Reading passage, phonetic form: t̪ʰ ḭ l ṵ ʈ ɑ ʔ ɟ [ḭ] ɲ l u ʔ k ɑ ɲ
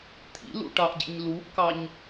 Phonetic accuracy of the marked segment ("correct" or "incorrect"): correct